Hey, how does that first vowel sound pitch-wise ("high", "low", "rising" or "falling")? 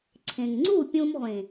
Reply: low